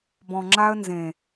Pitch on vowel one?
low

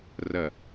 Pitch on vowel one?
low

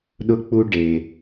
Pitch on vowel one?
rising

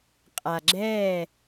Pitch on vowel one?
low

